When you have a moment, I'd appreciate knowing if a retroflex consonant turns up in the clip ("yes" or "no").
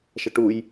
yes